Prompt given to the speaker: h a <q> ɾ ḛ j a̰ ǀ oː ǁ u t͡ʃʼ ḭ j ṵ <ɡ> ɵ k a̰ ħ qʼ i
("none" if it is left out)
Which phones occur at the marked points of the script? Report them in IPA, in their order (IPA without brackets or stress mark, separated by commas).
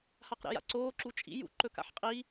q, ǃ